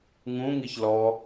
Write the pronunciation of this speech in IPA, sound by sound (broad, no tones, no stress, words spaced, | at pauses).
ŋũŋiç lɔ